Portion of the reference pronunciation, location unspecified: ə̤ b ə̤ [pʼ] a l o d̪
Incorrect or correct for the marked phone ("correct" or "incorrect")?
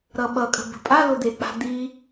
correct